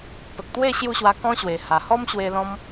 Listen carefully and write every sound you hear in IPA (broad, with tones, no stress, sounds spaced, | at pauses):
p ə˨ k̚ t̪ w e˥˧ ɕ j u˥˧ ɕ w a˧ k ɔ̃˦ ɕ w e˨˩ h a˨˩ h ɔ˦ m ɕ w e˧ l ɔ̃˦ m